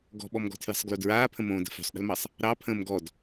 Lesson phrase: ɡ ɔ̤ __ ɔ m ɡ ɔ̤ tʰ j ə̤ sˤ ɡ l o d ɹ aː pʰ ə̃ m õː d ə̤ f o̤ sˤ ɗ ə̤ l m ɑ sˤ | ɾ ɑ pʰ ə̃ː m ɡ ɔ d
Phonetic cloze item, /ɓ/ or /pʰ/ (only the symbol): ɓ